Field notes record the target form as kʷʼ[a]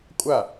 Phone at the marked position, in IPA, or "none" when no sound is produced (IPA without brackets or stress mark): a